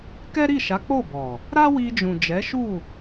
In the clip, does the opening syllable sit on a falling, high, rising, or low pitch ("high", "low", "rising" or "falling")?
high